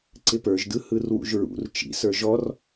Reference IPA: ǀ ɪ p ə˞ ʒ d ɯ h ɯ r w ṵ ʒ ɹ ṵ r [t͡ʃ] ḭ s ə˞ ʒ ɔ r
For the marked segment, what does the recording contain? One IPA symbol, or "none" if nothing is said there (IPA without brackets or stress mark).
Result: t͡ʃ